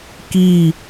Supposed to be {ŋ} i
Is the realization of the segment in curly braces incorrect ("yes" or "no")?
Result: yes